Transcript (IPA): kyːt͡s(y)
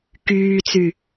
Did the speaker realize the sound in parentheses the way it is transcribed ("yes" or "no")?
yes